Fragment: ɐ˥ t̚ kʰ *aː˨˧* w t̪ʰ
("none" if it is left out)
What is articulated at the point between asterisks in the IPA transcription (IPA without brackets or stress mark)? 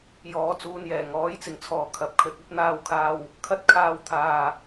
aː˧